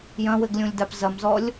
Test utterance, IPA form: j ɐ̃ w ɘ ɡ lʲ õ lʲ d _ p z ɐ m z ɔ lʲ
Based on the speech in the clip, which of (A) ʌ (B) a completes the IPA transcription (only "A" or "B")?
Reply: B